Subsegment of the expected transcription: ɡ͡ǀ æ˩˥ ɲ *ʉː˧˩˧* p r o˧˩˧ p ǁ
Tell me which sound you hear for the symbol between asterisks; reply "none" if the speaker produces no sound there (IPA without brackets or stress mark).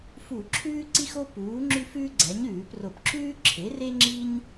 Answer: ʉː˧˩˧